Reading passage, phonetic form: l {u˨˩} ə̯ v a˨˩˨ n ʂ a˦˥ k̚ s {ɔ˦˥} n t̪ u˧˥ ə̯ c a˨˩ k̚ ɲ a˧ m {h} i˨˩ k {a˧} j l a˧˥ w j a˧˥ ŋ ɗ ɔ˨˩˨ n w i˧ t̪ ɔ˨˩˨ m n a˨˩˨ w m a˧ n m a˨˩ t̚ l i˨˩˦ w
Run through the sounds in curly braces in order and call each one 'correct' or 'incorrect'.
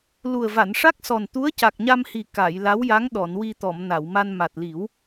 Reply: correct, incorrect, correct, incorrect

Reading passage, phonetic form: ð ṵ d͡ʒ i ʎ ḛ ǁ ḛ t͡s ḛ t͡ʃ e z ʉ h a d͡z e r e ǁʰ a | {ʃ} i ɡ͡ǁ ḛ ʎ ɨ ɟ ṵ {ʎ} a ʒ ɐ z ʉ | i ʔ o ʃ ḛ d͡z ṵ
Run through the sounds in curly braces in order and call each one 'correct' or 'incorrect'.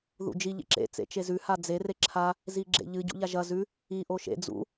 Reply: incorrect, correct

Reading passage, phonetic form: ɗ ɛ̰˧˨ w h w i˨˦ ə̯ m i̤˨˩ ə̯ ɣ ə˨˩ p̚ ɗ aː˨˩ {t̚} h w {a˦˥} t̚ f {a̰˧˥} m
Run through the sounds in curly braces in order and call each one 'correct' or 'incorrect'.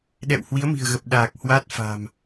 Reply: incorrect, correct, incorrect

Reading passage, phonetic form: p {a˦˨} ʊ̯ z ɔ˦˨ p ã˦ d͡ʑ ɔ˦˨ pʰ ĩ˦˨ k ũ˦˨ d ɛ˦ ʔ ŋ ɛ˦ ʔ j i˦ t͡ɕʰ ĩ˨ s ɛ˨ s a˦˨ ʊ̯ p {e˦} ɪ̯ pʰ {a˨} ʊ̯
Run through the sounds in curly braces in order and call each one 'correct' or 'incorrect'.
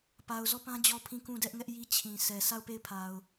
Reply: incorrect, incorrect, correct

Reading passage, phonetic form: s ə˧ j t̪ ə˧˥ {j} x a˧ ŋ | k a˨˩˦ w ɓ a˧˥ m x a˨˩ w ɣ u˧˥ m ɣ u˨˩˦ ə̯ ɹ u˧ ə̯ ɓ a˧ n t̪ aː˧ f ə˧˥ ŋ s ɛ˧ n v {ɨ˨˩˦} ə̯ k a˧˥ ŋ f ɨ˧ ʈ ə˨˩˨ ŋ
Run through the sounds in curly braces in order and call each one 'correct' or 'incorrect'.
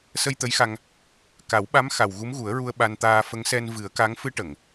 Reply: correct, correct

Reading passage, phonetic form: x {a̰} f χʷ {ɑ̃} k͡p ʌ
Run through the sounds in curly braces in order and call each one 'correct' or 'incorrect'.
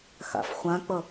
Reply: correct, incorrect

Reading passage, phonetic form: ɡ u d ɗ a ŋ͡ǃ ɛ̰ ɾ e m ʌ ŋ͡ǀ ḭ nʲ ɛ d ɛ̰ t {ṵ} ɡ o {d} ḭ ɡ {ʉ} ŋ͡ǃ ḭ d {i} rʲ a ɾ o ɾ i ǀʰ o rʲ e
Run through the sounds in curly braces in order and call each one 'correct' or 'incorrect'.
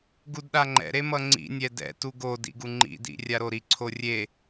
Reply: incorrect, correct, incorrect, incorrect

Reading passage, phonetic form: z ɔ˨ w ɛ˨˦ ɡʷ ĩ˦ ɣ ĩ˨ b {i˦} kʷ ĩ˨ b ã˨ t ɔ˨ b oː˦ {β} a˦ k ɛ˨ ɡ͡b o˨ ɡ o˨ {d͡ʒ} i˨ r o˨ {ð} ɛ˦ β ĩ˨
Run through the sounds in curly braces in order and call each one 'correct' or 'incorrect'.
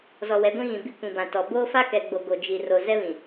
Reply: correct, incorrect, correct, incorrect

